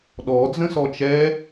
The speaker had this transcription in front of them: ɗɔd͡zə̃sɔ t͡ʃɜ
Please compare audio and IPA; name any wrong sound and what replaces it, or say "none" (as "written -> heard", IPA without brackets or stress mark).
ɜ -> ɛ